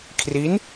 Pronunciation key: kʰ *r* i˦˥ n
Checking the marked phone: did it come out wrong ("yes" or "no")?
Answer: no